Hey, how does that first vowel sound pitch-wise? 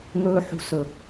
high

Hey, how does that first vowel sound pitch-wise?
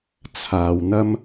low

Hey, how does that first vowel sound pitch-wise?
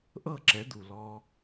falling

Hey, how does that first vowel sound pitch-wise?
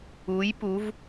rising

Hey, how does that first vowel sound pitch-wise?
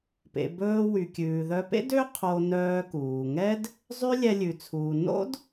low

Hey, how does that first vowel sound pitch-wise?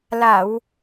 low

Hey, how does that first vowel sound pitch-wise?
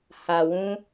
low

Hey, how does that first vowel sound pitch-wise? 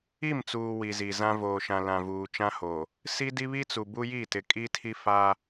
falling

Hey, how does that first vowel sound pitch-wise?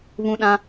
high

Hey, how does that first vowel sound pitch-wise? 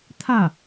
falling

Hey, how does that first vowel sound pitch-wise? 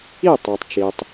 falling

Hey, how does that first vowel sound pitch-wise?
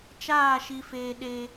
falling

